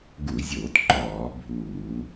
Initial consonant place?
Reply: velar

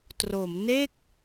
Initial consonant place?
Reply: alveolar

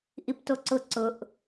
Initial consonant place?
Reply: glottal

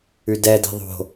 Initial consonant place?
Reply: alveolar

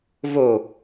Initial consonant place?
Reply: labial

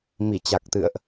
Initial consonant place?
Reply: labial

